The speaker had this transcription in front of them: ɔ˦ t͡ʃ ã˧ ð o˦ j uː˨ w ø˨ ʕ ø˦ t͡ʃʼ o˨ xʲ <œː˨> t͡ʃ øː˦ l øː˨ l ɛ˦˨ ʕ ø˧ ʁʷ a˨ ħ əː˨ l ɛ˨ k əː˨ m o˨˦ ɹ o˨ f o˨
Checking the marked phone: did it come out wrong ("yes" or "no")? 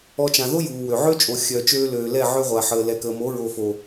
yes